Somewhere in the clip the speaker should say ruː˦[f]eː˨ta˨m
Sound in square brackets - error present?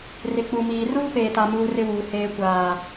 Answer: yes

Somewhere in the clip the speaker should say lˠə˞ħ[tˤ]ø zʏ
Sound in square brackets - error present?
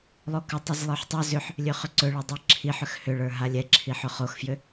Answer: no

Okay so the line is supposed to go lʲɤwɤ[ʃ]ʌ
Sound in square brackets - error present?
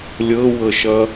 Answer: no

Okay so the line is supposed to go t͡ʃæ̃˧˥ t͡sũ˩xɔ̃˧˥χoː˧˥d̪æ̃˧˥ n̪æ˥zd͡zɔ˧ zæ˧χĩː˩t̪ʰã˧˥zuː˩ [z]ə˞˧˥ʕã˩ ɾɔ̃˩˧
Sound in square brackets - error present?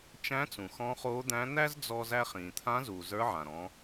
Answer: no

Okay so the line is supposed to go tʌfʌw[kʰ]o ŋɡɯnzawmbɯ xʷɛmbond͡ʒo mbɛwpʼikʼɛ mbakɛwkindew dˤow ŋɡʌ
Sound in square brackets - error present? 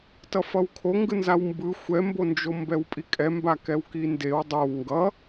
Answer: no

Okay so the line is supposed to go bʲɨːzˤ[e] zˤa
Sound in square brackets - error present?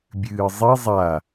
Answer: yes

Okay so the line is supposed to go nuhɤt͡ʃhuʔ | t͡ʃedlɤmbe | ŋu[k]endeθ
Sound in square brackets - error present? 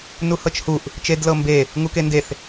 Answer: no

